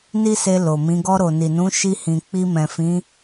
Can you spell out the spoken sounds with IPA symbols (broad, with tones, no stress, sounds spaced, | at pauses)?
n i˦ s e˧ l o˨ m ĩ˨˦ ɡ ɔ˧ ɾ o˨ n i˨ n ũ˨˦ ʃ i˧ h ĩ˨ k͡p i˧ m ɛ̃˨ f ĩ˨˦